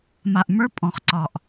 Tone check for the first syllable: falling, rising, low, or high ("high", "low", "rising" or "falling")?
low